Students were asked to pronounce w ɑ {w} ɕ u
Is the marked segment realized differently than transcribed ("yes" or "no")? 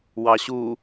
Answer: yes